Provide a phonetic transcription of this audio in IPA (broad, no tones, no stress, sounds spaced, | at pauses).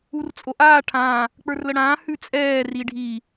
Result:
u r t͡sʼ o ʔ aː ʈʰ ã | k͡p ə˞ r l ə ɽ ãː h ʉ t͡sʼ ɛː r i ɖʱ i